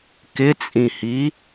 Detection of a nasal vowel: present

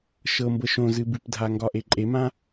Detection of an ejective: present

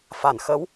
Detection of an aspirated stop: absent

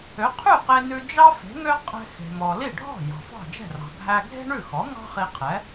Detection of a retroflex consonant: present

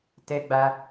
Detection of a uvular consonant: absent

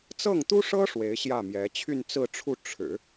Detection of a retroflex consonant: present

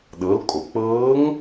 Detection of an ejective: present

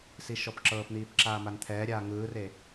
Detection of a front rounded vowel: absent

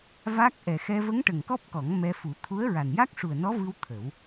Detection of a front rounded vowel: absent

